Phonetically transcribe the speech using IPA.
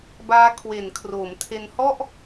b aː˦˥ kʰ w e˩˦ n kʰ r oː˩˦ m tʰ e˧ n h ɔ˥˩ ʔ

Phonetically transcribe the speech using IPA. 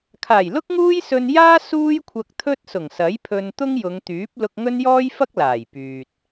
kʰ aː˨˩ j l ʊ˥ k̚ ŋ uː˥ j s ɵ˧ n j aː˥ s uː˥ j kʷʰ ɐ˧ k̚ t̪ʰ ɵ˥ t̚ s ʊ˨˩ ŋ s ɐ˨˥ j pʰ ɵ˧ n t̪ ʊ˥ ŋ j ʊ˨˧ ŋ t̪ yː˨˥ p̚ l ʊ˧ k̚ ŋ ɵ˥ n j ɔː˥ j f ɐ˥ k̚ l aː˨˩ j p yː˨ t̚

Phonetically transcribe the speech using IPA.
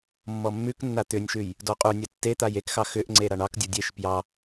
mː ɔ mː ʉ k nː a t̪ ʏ nʲ ʃ ʉ j | d ɔ qʼ u nʲ a tː e t̪ a j e k x ɑ x ʏ ʔ ŋ͡ǀ e ɾ a ɳ ɑ k dʲ o dʲ e ʃ p j ɑ

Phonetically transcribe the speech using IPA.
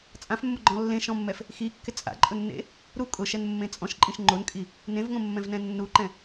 t͡sʼ ã f mː ʊ ɡ͡ǃ ɔ̃ lː ẽ ʃ ɔ̃ mː ɛ f | x i kː ɪ t͡sʼ a̰ ǃʼ ʊ nː ḛ | ɾ u kʼ ʊ ʃ ɛ n mː ẽ t͡sʼ ɔ̃ ʃ ǃʼ ĩ ʃ ŋ͡ǃ o n kʼ i | n ẽ v ŋ õ mː ɛ̃ v n ɛ̃ nː u ǃ ɛ̃

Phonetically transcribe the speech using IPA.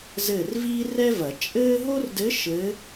z ɘː˦˨ r v iː˥ r ɛ˥ v ɐ˨˩˦ t͡ʃʼ ɘː˥ ɦ o˥ r d ɘ˧˥ ʃ ɘ˧˥

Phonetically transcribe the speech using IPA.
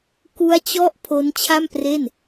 k u˦˥ a̯ t͡ɕ ɔ˦˥ ʔ pʰ o˦˥ n t͡ɕʰ a˥˩ m p r e˥˩ n

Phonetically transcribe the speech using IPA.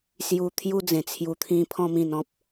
s j u˧ t̪ʰ j u˦ d͡z ẽ˨˩ t͡sʰ j u˧ t̪ʰ ĩ˦ pʰ ɔ̃˦ m ĩ˧ n ɔ̃˦ p̚

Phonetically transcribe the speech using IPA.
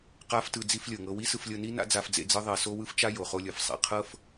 q a˥ f t ɯ˧ d͡z i˥ f lʲ ɤ˩ ŋ ɤ˥ w i˥ s ɯ˧ f lʲ ɤ˧ n i˥ n a̰˥ d͡z a˧ f d͡z ḛ˧ d͡z ɯ˥ ðˤ e˧ s o˥ w ɯ˥ f t͡ʃ a˥ j o˩ χ o˧ lʲ ɤ˩ f sˤ ḛ˩ qʰ ɤ˥ f

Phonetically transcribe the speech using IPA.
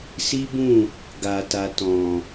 s i˦ b ũ˦˨ | ɡ a˧ t a˧ t ɔ̃˨

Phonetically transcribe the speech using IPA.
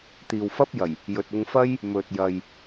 t̪ iː˨ w f ɐ˥ p̚ j ɐ˨˩ j | j ɵ˨ t̚ ʊ˧ ŋ f ɐ˥ j | m ɵ˨ t̚ j ɐ˨ j

